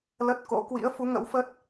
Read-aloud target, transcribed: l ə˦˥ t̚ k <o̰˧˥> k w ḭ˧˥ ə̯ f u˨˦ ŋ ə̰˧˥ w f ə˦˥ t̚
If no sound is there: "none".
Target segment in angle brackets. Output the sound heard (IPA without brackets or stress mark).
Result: o̰˧˥